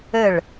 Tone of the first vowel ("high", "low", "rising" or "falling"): falling